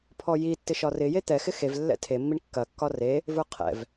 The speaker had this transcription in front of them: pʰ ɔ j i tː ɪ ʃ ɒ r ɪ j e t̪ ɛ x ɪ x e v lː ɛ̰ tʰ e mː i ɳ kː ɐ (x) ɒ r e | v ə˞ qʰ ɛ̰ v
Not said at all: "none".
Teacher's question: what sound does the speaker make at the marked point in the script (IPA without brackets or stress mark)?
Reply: kː